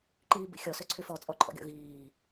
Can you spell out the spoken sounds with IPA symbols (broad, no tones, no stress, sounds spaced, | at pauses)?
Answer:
ǃ iː b ḭ xʲ ɔ s ø ǀʰ y f ɔ t͡sʼ ɔ ǃʰ ɔ̰ ɡʲ ɔ̰ ɣ iː